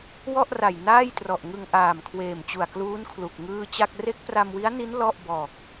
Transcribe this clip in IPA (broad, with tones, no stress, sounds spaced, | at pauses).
w ɔ˥˩ ʔ r a˨˩ j n aː˥˩ j t r ɔ˨˩ ʔ ŋ ɯ˧ ŋ ʔ aː˨˩ m kʰ w eː˨˩ m t͡ɕ u˨˩ a̯ k l uː˦˥ n kʰ l u˨˩ k̚ ŋ ɯː˥˩ t͡ɕ a˥˩ k̚ r e˦˥ k̚ p r a˧ m w i˦˥ a̯ n i˦˥ n l ɔ˥˩ ʔ b ɔː˨˩ k̚